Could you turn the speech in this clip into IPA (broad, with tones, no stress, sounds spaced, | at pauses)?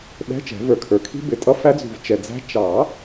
ɗ ɛ̤˧˥˧ t͡ʃ ɛ̤˨˩˦ v ə˞˨ kʰ ə˞˨ kʰ i̤˦˥ b ɪ˨˩˦ tʼ ʌ˧˥˧ f æ˦˥ d͡z ṳ˨ v t͡ʃ ɛ˨ d͡z æ̤˦˥ t͡ʃ ɑ˨˩˦